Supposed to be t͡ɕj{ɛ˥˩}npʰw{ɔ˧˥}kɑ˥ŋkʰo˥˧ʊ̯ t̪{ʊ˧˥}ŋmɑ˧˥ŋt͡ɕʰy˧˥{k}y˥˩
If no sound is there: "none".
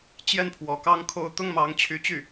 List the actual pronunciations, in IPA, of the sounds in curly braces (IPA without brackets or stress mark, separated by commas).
ɛ˥˩, ɔ˧˥, ʊ˥˩, t͡ɕ